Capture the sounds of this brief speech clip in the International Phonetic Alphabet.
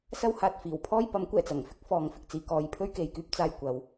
sɐ˥whaː˨t̚fiː˨˩w pʰɔː˥jpɐ˨˥mkʷɛː˨˩t͡sɐ˨˩ŋ fɪ˥k̚fɔː˨ŋ fɪ˧k̚t͡siː˨kɔː˧j pʰɵ˥ɥke˨jkyː˧p̚ t͡saː˧j kʷɐ˨˧w

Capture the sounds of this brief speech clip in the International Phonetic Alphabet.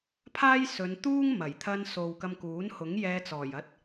pʰaː˥j sɵ˨˧nt̪uː˥ŋ mɐ˨˩jt̪ʰɐ˧n so˨wkɐ˧mkuː˨˥nhʊ˨˥ŋ jɛː˧ t͡sɔː˨˩jɐ˧t̚

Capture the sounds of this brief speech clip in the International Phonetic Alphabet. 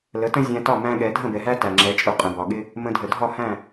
lə˩˥tə̃˥ zʲæ̃˧tɒ˥˩ mæ̃˥ɠɛ˩˥ dʱə̃˥˩bɛ˩ɦæ˥ tæ˩ŋ͡ǁɛ˩˥t͡ʃʼʊ˧ qʼə̃˩bɒ˩ɠɪ˥ | mə̃˧dʱə˩ dʱɒ˥˩hæ̃˥˩

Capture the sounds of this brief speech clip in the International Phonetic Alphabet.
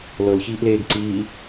lɤlçiːʔleːɡ ǀiː

